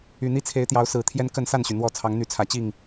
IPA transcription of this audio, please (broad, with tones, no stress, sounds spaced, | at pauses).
y˨˩ n̪ i˦ t͡sʰ e˨˦ ɪ̯ t̪ j ɑ˨˦ ʊ̯ s ɹ̩˨˩ t̪ʰ j ɛ˦ n k ə˥˨ n s a˥˨ n ɕ y˩ n̪ w ɔ˥˨ t͡sʰ ɑ˨˦ ŋ n̪ y˨˦ t͡sʰ ä˨˩ t͡ɕ i˥˨ ŋ